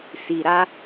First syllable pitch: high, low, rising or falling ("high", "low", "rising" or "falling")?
low